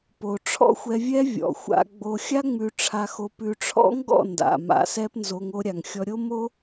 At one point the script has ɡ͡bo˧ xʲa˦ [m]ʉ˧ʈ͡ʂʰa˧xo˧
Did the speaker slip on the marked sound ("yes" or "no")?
yes